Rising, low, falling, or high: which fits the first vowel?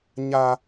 high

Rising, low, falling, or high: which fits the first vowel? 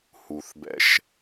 low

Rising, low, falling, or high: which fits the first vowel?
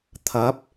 rising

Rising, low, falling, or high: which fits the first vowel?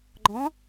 rising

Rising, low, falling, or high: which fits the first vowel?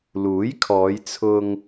rising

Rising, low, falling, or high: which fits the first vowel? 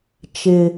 low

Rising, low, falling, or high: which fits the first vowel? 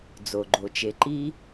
low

